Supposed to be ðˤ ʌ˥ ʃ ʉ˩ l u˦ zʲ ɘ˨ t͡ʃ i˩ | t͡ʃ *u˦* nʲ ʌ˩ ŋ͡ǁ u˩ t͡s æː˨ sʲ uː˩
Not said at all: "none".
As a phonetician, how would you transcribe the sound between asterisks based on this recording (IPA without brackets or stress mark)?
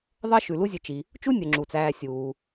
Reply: u˦